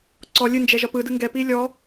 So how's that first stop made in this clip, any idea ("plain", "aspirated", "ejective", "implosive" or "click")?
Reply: click